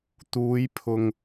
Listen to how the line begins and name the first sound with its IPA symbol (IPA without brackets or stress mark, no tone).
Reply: t̪